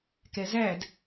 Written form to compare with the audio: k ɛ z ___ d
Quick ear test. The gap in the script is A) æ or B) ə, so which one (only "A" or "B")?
A